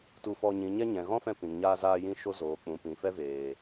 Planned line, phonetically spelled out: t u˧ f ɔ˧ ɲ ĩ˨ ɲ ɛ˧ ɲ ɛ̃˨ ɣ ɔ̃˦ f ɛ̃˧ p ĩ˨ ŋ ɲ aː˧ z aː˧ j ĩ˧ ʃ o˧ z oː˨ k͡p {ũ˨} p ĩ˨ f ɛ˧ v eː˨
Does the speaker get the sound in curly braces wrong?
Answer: no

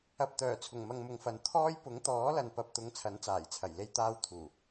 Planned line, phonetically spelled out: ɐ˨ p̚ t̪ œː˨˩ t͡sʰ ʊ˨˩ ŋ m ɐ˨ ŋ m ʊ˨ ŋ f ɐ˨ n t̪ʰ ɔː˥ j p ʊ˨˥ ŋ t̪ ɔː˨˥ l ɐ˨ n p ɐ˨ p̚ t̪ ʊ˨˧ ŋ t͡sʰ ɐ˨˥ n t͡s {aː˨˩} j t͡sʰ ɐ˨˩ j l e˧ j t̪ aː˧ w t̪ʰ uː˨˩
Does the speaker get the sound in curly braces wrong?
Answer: no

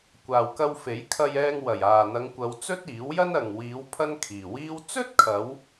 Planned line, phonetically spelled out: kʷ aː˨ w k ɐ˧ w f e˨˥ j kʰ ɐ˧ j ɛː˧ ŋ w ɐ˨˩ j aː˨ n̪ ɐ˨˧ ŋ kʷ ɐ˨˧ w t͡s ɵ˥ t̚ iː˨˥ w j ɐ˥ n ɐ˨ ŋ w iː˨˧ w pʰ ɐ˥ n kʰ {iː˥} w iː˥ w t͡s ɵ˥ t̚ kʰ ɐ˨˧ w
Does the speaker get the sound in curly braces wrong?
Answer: yes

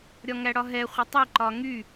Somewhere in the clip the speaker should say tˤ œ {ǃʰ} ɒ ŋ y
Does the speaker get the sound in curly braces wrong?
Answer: yes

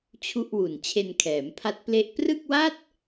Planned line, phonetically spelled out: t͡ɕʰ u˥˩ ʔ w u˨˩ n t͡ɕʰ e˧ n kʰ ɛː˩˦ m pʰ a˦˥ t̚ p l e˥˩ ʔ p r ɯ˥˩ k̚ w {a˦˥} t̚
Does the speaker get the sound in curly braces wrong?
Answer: yes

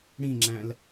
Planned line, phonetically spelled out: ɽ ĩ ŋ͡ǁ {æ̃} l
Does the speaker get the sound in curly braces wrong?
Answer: no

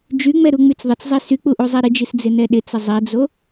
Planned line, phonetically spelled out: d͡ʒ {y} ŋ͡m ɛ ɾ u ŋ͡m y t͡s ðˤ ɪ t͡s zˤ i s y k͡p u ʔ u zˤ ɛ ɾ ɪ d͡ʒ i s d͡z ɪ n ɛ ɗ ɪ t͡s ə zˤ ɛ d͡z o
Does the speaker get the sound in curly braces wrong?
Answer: no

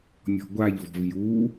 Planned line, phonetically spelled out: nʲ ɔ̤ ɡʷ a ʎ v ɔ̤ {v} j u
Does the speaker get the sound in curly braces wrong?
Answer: no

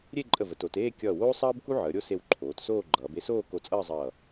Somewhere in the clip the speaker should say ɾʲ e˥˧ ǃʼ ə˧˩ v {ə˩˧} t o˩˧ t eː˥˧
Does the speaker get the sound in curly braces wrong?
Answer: no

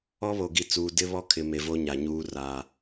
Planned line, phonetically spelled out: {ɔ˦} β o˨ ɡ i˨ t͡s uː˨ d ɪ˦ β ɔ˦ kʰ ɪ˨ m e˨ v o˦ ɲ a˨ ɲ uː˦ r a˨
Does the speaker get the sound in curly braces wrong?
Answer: no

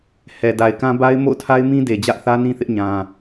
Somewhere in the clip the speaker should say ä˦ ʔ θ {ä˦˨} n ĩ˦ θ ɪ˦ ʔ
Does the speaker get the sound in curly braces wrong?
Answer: yes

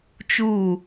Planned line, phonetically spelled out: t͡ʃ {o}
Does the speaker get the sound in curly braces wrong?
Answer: yes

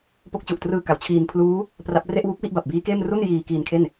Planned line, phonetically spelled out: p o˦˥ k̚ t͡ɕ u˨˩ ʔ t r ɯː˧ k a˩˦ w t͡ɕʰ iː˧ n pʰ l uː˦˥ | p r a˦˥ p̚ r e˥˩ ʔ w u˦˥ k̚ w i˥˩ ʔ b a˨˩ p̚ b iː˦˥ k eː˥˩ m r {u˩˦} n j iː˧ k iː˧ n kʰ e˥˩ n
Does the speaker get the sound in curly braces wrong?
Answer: yes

